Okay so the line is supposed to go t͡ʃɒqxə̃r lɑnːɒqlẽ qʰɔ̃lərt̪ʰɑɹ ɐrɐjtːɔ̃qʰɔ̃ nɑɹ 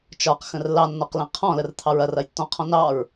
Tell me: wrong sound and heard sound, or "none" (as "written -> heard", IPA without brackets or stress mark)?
none